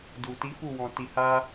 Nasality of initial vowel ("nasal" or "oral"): oral